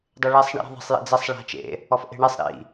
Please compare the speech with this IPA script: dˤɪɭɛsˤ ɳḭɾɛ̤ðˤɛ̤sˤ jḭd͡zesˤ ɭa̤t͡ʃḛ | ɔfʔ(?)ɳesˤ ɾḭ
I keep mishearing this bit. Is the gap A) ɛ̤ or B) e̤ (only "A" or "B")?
B